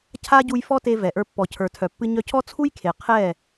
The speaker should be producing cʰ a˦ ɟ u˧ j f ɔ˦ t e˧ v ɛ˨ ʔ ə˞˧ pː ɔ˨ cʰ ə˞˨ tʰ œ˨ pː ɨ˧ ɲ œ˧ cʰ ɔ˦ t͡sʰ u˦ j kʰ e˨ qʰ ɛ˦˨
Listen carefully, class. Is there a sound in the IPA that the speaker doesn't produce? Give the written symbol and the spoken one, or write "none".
none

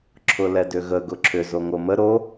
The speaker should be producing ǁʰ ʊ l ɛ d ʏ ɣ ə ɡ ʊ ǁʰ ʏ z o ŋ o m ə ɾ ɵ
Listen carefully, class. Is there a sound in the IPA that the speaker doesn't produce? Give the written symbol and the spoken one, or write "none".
ɵ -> o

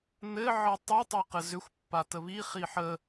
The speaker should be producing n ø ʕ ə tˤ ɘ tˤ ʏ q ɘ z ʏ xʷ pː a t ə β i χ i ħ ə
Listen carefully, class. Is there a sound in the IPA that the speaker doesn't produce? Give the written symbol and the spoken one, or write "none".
ø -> ɘ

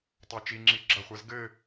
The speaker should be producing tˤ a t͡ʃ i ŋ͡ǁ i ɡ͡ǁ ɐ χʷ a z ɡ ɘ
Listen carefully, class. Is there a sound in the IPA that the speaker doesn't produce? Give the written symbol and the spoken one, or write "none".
none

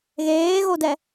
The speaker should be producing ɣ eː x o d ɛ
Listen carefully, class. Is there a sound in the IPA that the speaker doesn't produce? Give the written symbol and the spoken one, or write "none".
x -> ɣ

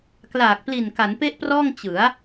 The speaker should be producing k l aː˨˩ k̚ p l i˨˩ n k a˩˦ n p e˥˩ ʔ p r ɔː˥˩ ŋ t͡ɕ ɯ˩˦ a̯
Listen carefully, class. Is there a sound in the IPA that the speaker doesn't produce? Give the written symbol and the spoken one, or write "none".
none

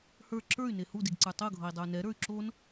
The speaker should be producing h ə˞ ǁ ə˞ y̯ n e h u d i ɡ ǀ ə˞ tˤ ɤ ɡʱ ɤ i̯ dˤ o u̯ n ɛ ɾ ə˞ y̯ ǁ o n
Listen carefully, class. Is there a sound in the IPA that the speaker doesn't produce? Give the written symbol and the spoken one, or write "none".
none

